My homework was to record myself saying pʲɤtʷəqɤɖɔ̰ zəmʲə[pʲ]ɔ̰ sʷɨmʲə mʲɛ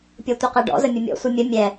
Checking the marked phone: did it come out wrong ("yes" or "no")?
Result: yes